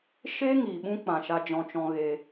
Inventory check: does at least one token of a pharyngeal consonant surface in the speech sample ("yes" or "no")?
no